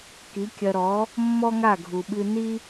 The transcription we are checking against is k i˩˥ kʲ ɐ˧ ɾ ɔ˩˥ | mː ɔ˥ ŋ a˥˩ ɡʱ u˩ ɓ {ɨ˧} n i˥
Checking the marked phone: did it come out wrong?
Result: no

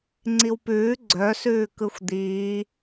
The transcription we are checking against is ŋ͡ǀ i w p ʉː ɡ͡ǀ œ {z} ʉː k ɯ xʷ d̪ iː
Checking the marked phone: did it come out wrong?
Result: yes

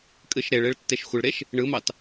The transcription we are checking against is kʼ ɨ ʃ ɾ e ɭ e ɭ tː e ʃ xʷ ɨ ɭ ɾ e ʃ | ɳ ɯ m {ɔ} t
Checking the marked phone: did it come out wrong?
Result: yes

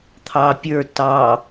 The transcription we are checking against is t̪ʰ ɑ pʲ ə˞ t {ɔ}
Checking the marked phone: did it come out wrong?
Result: yes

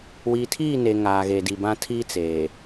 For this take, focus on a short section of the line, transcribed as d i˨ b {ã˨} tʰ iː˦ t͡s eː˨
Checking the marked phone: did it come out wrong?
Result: yes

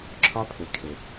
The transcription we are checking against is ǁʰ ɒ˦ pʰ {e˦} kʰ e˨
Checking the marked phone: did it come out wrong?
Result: yes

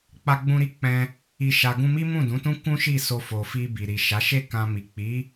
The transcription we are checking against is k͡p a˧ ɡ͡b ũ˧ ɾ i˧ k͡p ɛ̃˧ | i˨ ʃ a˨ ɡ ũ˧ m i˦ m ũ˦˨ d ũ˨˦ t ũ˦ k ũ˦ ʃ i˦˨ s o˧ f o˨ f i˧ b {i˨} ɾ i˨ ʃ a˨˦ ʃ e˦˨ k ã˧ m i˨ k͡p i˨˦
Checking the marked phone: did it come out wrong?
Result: no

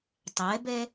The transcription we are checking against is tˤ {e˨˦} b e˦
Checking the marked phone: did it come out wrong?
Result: no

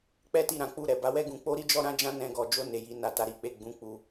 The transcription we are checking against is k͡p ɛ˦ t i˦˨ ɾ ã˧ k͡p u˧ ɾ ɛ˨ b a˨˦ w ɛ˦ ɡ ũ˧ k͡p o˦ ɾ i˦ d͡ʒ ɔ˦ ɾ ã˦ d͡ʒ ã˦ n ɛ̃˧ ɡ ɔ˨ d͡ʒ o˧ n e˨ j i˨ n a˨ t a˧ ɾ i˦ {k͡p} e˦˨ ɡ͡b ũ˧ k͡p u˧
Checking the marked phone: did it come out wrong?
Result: no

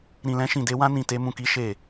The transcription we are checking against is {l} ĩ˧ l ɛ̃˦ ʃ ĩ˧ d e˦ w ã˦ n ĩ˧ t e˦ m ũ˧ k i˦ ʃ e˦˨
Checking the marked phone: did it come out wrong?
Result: yes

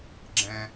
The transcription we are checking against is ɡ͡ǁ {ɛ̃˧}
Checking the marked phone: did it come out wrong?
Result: no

